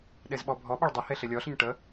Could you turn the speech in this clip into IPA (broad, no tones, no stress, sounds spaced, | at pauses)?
ɗ e z ɓ ɔ bʱ ɔ ɓ ɐ ɭ dˤ ə h e ɬ e lʲ ɔ ɬ ə ɲ ʈ ə